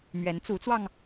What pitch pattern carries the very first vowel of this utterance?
rising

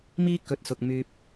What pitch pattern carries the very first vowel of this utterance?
high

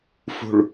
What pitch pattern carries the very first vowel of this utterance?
low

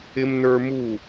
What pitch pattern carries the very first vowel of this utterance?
high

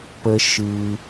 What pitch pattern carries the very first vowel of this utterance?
high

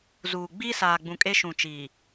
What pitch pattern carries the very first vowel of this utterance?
low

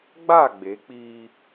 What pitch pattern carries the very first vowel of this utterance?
falling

